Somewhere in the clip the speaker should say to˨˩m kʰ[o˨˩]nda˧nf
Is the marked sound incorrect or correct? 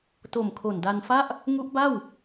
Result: correct